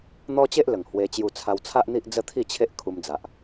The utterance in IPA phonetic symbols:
n̪ ɔ˦ t͡ɕ e˦ ʔ l ə˨˩ ŋ h w e˧ t͡ɕ j u˧ t͡sʰ a˧ w t͡sʰ a˦ ʔ n̪ i˦ ʔ d͡z ə˦ t̪ʰ i˥˧ t͡ɕʰ e˦ ʔ kʰ u˧ m d͡z a˨ ʔ

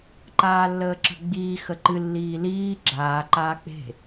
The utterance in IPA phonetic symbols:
ǃ aː lː əː ǁ ə̤ ɡ͡b iː x ə ǃ ɨ lː iː l iː ɡ͡ǁ aː ǃ aː k͡p e̤

